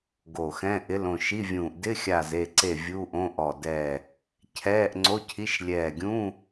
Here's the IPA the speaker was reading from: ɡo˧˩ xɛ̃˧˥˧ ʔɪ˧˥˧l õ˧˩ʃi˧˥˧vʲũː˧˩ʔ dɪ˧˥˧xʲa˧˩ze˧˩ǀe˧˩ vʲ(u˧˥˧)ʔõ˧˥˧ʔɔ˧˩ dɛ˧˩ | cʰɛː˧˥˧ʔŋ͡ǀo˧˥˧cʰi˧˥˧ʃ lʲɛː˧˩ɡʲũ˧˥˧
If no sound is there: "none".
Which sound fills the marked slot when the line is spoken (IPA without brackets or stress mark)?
u˧˥˧